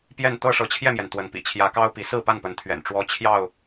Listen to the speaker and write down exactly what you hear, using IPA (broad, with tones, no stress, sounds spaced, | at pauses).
p j ɛ˥˨ n t̪ ɤ˥˨ ʂ ɤ˨˦ t͡ɕʰ j ɛ˥˨ m j ɛ˩ n t̪ w ə˨˦ n p ḭ˨˩ t͡ɕʰ j ä˨˦ k ɑ˦ ʊ̯ p i˨˦ s ɹ̩˥˨ p a˥˨ n p ə˨˦ n t̪ʰ ɥ ɛ̰˨˩ n ʈ͡ʂ w ɔ˦ t͡ɕʰ j ɑ˥˨ ʊ̯